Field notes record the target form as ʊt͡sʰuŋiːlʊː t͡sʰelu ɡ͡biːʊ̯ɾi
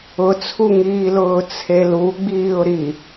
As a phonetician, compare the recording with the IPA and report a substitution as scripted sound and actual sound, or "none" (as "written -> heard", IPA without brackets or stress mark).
none